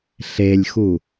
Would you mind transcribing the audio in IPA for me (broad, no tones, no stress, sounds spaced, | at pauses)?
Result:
ɬ e lʲ x u